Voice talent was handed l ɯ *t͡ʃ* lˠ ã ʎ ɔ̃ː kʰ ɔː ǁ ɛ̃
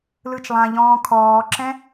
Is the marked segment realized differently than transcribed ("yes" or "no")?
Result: no